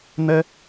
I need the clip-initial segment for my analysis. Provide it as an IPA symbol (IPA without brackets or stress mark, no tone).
n̪